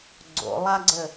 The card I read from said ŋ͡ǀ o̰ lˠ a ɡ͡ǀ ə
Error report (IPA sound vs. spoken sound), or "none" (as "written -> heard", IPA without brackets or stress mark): ŋ͡ǀ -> ɡ͡ǀ